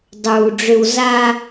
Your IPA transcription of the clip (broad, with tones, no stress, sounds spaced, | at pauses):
dˤ uː˨ ɖ͡ʐ ʏ˧ w z aː˧